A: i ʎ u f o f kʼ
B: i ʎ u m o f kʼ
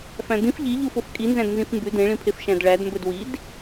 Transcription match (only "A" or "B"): A